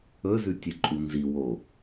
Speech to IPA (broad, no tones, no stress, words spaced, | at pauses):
ɵzʉ tʲɨǃʼunzi wo